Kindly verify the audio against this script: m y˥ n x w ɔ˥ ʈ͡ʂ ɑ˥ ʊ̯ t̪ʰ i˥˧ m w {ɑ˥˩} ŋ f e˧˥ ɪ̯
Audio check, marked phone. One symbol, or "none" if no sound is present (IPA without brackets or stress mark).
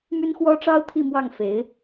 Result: ɑ˥˩